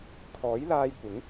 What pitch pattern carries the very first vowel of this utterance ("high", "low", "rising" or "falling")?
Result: rising